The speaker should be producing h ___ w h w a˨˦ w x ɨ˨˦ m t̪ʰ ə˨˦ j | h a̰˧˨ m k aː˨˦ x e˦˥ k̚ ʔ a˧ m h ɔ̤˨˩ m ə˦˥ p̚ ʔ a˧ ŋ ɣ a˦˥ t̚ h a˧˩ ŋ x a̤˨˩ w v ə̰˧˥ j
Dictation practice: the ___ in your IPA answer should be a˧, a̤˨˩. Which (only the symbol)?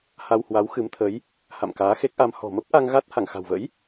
a˧